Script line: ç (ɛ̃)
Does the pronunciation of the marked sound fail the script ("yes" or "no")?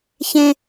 yes